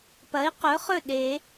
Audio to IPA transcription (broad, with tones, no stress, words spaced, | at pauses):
pɐ˩˥i̯qɵ˩˥ χɵ˥˩ɗe˨˩˦